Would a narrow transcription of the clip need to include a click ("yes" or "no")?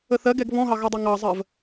no